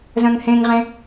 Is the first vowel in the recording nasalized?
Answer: yes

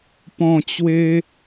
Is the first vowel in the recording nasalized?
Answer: yes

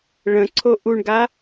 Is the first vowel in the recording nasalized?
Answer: yes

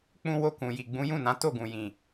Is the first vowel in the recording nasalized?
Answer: yes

